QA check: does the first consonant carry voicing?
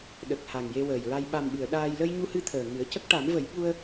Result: yes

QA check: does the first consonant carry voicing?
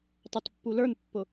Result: no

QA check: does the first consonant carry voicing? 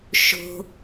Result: no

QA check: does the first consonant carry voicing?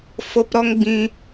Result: no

